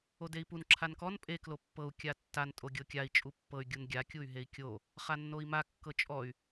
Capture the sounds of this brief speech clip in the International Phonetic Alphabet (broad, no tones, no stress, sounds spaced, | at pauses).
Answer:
o d e i̯ p u n ǁʰ a n k ɔ n pʼ e k l o pː ɤ u̯ kʲ a tː a n tʼ o ɡʲ ɤ kʲ a i̯ t͡ʃʼ u pː ɤ y̯ ɡʲ u n ɡʲ a kʲ u y̯ ɦ e i̯ kʲ o | χ a nː o i̯ m a kː ɤ t͡ʃʼ ɔ y̯